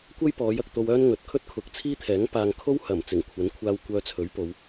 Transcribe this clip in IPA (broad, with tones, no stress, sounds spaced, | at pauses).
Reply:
kʷ ɐ˥ j p ɔː˨˧ j ɐ˨ k̚ t̪ o˧ w œː˥ n ŋ ɵ˨˥ t̚ kʰ ɵ˥ t̚ kʰ ʊ˨˥ k̚ t͡sʰ iː˥ t̪ʰ ɛː˨˥ ŋ p aː˨ ŋ kʰ o˥ w h ɐ˨˩ m t͡s ɪ˨˩ ŋ kʷʰ ɐ˨˥ n kʷʰ aː˧ w kʷ œː˧ t͡sʰ ɵ˨˥ ɥ p o˨˧ w